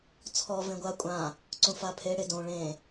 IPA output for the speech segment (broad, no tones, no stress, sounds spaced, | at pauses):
t͡sʰ ɔ v ẽ ɡʷ a kʷʼ ã | ǀ ũ f a pʰ e ɽ e d õ ɭ ẽ